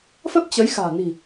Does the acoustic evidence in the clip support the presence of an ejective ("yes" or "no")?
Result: no